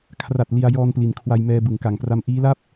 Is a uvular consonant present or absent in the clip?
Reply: absent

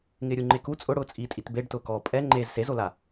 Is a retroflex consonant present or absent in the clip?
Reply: present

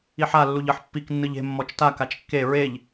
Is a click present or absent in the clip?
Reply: absent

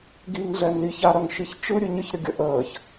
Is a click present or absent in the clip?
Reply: absent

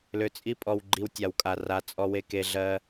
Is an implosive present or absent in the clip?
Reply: absent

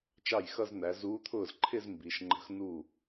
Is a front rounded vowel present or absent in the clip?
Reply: absent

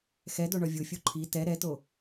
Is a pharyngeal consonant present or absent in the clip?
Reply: absent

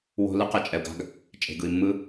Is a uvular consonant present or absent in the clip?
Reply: present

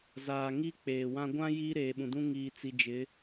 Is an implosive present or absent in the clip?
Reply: present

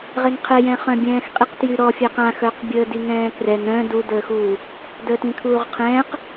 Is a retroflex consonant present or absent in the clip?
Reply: absent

